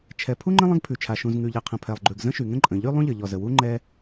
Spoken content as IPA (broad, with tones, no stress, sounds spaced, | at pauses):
t͡ʃʰ ɛ˩ pʰ u˥ ŋ͡ǃ ə̃˥ lˠ ə̃˥ ɡ pʰ ʉ˩ t͡ʃʰ a˩ ʃ ũ˩ z ŋ ʉ˩ ʎ ɛ˩ qʰ ə̃˩ pʰ ɛ˩ lˠ ɡ͡ǃ ʉ˩ ɡ z ə̃˥ ʃ y˩ ŋ ə̃˥ ǃʼ ə̃˩ ʎ y˥ lˠ ũ˥ ʎ ə˩ ʎ ɔ˩ z ə˩ w u˥ ŋ͡ǃ ɛ˥